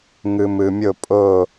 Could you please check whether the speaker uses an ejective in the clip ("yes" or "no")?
yes